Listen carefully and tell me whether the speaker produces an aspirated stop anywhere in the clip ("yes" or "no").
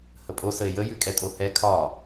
yes